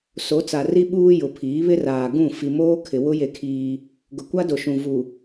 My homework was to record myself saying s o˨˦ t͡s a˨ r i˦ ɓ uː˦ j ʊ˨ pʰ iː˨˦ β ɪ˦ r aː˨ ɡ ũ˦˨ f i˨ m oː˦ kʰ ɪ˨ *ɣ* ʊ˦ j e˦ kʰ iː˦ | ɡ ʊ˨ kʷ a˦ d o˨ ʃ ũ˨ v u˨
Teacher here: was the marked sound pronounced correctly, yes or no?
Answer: no